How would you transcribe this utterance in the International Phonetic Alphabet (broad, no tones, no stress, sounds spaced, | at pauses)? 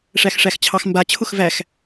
ʂ æ x ʂ æ x t͡ɕʰ ɑ x m b a t͡ɕʰ ʊ x v æ x